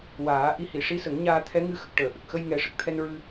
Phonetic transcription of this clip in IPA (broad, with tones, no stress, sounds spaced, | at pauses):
w aː˨˩˦ ʔ i˧ h i˨˩˨ ʂ i˧˥ s ə˨˩˦ ŋ ɲ aː˧ t̪ʰ ɛ˧˥ ŋ ɨ˧ x ə˨˩ k̚ ʈ əː˨˩˨ ʔ ə˨˩ k̚ x ə˧ j ŋ ɛ˨˩˦ ʂ ə˨˩ k̚ t̪ʰ ɛ˧ n ɹ ɨ˧